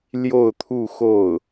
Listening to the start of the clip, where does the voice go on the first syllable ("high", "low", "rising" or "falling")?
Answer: falling